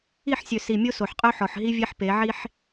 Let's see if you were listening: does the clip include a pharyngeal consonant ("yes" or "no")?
yes